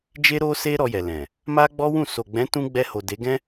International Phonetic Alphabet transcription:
d͡ʒ e˦ ɾ o˦ s e˦ ɾ ɔ˧ j ɛ˨ l ɛ̃˨ | m a˦ ɡ͡b ɔ˦ w ũ˦˨ s o˨ ɡ͡b ɛ̃˨˦ t ũ˧ ɡ͡b ɛ˧ h o˨ d e˨˦ ɡ ɛ̃˦

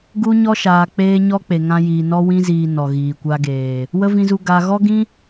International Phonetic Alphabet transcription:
ɡ u˦ ɲ ɔ˦ ʃ aː˨ k͡p eː˧ ɲ ɔ˦ k͡p e˨ ŋ ã˧ j iː˨ n ɔ˧ w ĩ˧ z iː˨ n ɔ˨ ɣ iː˨ kʷ a˧ ɡ eː˨ | w ə˦ v ĩ˧ z u˧ ɡ a˧ ɣ ɔ˦ ɡ ĩ˦

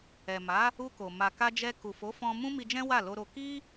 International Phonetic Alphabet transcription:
ɛ˨ m a˨˦ | u˧ k o˨ m a˨ k a˧ d͡ʒ ɛ˧ k u˨ f o˨˦ f ɔ̃˧ m ũ˦ m i˧ d͡ʒ ɛ̃˦ w a˦˨ l o˧ ɾ o˧ k i˦

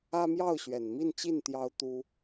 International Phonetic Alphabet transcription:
ä˥ m j ɑ˥˩ ʊ̯ ɕ ɥ ɛ˨˩ n m i˥˧ n t͡ɕ i˥˩ n t̪ j ɑ˥ ʊ̯ t̪ u˥

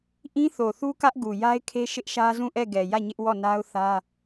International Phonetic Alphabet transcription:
ʔ ĩ˦ θ o˨ θ u˦ k ä˦ ʔ ɡ u˨ j a˦ ɪ̯ kʰ e˦ ʃ ɪ˦ ʔ ʃ ä˦ z ũ˦˨ ʔ ɛ˦˨ ɡ ɛ˨ j ä˦˨ ɲ ɪ˦ ʔ w ɔ˦˨ n a˦ ʊ̯ θ ä˦

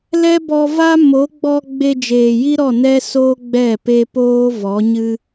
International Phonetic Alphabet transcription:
l ɛ˦ b ɔ˧ v a˦ m o˨˦ ɡ͡b ɔ˧ ɡ͡b e˧ d͡ʒ eː˨ j i˦ ɾ ɔ˦˨ n ɛ˦ s oː˦ ɡ͡b ɛ˦˨ p e˧ p oː˦ v ɔ˨˦ ɲ ɨ˦

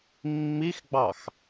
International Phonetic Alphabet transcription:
mː i x ɡ͡b ɑ x

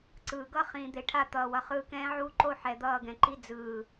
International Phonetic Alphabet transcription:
ǀ ɯː˨ ɡ ʌ˦ χ ĩː˨ d̪ e˨ ʈʰ a˦˨ t̪ ʌː˨ w ʌ˨ χ ɯː˧ k ɛ̃ː˦ ʕ uː˦ ǃ o˦ ħ ɛ˨ d̪ ʌː˦˨ ɡ ɛ̃˨ ǃ i˦ d͡z ɯː˨

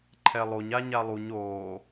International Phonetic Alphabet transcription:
ǃʰ ɛ lˠ o ɲ a ɲ a lˠ u ɲ oː

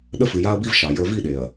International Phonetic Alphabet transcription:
ɗ ə˦ f ɨ˨ j a˦ ɐ̯ b i˦ v ʃ ɑ˨ j ə˞˦ v i˦˨ ɗ e˨ ɐ̯

